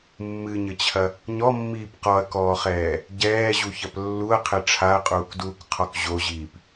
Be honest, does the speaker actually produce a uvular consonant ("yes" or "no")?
yes